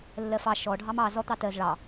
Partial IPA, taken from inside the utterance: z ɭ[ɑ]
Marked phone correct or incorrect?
correct